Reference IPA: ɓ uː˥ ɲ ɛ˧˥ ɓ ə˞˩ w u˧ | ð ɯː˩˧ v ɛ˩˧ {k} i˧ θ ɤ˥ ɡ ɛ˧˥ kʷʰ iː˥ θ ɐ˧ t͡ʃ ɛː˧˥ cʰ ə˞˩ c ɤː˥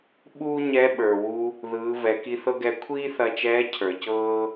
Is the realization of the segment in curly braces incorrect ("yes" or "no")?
no